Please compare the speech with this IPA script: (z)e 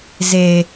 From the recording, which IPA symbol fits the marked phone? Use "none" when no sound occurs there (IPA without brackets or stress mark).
z